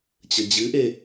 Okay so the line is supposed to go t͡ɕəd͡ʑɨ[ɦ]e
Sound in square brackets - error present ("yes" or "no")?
yes